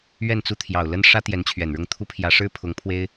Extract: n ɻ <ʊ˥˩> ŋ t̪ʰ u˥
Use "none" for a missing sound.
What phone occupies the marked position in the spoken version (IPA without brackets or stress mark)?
ʊ˥˩